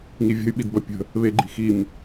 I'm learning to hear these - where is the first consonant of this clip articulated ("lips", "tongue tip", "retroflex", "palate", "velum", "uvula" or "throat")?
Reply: velum